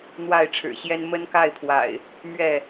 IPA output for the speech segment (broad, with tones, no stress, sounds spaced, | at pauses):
n̪ w a˥˨ ɪ̯ ʈ͡ʂʰ ɻ̩˨˩ ɕ j ɛ˦ n m ə˦ n k a˥˨ ɪ̯ pʰ w a̰˨˩ ɪ̯ | m ɥ ɛ˥˨